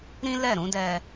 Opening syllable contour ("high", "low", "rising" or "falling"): high